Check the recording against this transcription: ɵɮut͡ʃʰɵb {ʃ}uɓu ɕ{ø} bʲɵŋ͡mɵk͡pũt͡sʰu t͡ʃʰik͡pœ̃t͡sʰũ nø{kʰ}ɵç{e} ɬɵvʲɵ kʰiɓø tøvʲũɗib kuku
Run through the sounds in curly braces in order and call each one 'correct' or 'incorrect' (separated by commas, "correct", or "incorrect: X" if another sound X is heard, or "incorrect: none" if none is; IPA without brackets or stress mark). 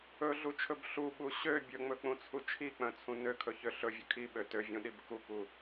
incorrect: ɬ, correct, correct, incorrect: ø